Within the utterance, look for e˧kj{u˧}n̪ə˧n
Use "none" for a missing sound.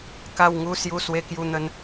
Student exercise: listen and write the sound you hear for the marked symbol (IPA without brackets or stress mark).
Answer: u˧